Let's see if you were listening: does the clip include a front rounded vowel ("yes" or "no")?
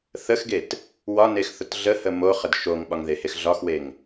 no